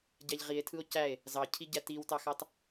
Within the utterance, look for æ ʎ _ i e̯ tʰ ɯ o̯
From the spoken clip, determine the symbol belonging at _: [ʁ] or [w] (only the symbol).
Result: ʁ